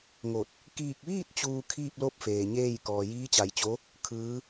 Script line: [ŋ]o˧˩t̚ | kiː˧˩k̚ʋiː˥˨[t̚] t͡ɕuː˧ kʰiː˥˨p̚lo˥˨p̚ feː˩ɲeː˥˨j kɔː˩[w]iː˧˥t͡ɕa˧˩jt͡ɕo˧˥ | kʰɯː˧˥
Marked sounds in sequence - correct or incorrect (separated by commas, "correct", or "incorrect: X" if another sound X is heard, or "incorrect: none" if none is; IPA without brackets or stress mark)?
correct, correct, incorrect: j